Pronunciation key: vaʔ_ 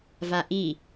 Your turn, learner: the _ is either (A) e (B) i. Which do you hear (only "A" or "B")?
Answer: B